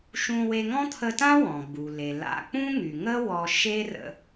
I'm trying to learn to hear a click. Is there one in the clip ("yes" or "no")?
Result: no